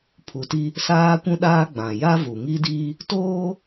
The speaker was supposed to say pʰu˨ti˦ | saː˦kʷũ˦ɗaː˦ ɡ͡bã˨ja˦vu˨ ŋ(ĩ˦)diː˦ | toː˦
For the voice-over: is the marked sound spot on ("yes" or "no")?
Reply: no